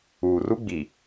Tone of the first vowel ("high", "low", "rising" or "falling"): low